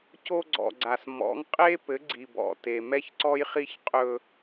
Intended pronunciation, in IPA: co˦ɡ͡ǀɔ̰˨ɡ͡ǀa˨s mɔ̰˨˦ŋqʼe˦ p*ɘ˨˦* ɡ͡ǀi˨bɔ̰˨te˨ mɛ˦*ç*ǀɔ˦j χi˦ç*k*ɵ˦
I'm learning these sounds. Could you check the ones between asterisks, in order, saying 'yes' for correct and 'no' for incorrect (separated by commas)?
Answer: yes, yes, no